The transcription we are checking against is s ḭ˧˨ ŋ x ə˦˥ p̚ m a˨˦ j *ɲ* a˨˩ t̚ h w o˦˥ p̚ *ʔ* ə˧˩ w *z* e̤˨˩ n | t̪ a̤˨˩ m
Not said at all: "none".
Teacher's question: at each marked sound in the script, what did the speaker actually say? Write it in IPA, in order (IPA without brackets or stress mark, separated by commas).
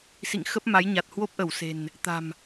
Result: ɲ, ʔ, s